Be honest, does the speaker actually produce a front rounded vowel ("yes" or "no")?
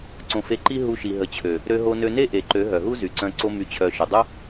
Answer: yes